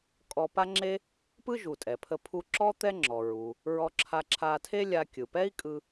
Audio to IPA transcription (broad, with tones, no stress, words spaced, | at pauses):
kʼɔ˧pa˥ŋ͡ǁe˥ | pɯ˥ʒu˩ tʼɛ˩pʰə˧ pʰu˧ǁɔ˥ t̪ɛ˥ŋ͡ǁɔ˩ɹu˩ | ɹɔ˧ǁʰa˧ǁʰa˧ tʰe˥lʲa˧ kʲɯ˩pɛ˥i̯ kʼɯ˧